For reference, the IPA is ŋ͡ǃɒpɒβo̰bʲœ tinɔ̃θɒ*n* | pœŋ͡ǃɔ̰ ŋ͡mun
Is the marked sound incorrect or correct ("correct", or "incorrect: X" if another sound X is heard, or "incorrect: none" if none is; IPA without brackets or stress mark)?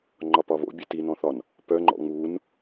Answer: correct